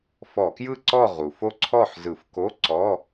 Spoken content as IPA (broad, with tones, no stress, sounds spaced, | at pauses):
f ɔ˧˩˧ k j ɯ˥˨ ǀ ɔ˥˨ ʁ u˩ f o˥˨ ǀʰ ɔ˥˨ ħ z ɯ˧˩˧ f k o˧˥˧ ǀ ɔ˧˥˧